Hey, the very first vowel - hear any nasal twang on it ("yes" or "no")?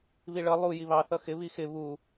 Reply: no